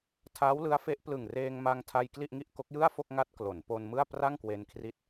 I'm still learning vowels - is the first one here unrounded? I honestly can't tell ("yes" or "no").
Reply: yes